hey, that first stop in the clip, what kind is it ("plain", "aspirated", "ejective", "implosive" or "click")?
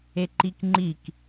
click